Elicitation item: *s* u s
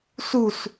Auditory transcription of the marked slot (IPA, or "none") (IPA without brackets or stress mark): s